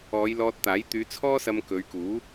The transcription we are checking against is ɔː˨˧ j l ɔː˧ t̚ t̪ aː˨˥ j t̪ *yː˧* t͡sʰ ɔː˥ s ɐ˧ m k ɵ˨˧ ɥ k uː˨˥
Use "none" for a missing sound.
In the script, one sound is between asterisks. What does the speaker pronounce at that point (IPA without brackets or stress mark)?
yː˨˧